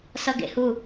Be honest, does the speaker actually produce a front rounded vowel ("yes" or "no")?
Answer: no